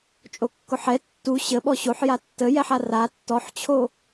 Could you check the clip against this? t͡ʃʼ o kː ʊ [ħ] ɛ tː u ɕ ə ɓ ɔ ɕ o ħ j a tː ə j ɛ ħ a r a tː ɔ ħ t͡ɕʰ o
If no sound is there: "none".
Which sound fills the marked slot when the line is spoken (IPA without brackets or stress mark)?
ħ